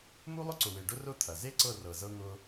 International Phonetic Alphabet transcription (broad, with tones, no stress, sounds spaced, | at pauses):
m u˦ lˠ ʊ˦ ǀ ʊ˨ w e˨ ɖ ʊ˦ r ʊ˦ t̪ʰ ɐ˨ z e˦ ǀ ɤ˦˨ r ɤ˨ z ɤ˦ ŋ ʊ˦